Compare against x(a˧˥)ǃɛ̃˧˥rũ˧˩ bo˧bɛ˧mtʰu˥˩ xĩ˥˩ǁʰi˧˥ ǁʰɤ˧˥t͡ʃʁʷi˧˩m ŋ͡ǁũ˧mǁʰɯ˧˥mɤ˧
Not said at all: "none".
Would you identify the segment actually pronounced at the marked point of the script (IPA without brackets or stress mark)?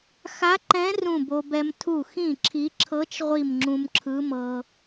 a˧˥